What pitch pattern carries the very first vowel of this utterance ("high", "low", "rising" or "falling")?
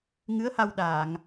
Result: rising